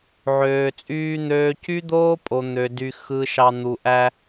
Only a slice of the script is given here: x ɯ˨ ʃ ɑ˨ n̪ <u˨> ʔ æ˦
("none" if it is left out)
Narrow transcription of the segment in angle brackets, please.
u˨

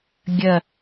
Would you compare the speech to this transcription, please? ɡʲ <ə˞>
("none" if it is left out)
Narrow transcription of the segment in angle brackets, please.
ɐ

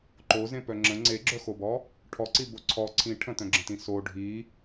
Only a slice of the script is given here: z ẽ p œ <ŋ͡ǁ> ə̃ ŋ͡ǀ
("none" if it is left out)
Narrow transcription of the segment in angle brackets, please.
ŋ͡ǁ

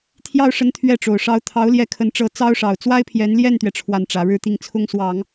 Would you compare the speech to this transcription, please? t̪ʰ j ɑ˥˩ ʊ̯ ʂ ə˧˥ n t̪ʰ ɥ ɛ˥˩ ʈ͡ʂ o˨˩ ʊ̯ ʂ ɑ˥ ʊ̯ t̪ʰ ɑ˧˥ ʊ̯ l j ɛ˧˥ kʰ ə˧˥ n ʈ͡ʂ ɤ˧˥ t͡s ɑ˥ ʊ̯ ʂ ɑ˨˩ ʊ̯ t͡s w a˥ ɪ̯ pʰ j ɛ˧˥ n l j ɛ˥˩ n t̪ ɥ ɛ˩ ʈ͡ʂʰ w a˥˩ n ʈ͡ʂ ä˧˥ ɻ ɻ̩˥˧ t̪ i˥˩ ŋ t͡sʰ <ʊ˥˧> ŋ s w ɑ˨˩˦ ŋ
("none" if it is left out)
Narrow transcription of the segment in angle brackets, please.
ʊ˥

